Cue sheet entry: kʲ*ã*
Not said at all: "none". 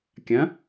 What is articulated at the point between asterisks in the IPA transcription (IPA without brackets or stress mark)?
ɐ̃